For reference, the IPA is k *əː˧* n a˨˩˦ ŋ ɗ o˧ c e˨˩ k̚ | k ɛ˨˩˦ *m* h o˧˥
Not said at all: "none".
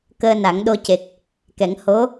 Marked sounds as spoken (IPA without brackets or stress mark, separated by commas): əː˧, ŋ